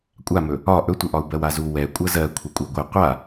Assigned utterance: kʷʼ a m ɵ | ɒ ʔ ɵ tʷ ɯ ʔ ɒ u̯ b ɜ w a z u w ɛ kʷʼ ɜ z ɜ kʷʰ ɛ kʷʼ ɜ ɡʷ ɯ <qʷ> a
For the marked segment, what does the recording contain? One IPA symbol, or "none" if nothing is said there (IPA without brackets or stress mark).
qʷ